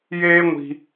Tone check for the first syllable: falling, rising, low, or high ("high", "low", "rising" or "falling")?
high